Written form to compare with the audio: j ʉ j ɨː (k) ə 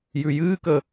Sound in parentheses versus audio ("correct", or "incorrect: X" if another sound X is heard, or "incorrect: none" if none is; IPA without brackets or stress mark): correct